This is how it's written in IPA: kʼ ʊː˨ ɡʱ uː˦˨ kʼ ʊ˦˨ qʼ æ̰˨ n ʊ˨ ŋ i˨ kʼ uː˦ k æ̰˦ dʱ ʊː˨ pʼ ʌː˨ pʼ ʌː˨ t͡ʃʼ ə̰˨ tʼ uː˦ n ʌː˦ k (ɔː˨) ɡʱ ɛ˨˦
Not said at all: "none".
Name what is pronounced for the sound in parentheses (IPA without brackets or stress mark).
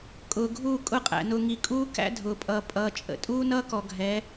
ɔ˨